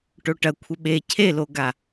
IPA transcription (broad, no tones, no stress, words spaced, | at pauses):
ʈoʈɐ kʷʰəɓe cʰeloɡa